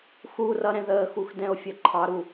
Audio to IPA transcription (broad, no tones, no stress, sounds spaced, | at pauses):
x u r ʌ ɾ ɛ̃ ð əː x u x d ɛ̃ o̯ fʲ ʌ ǃʰ ɑ ɾ u